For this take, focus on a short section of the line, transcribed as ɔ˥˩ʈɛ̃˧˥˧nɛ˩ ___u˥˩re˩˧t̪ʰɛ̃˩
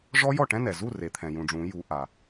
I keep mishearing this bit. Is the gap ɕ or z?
z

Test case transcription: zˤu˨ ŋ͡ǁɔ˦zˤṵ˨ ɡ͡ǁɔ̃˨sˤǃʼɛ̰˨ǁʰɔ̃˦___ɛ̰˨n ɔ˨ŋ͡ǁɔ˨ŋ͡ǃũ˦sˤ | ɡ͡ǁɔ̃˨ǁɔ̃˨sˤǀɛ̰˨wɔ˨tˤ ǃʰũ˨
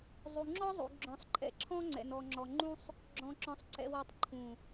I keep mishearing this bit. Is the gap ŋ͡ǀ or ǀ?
ŋ͡ǀ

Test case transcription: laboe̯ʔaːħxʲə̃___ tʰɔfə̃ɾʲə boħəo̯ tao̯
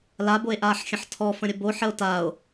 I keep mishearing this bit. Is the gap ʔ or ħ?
ħ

